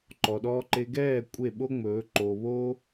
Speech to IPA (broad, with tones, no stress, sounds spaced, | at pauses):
ǃ ɔ˧ ɗ ɔː˦ ǃ e˦ ɡ ɛː˦˨ kʷʼ e˦˨ ɓ o˦ ŋ͡m ɵː˨˦ ǃ oː˧ β oː˦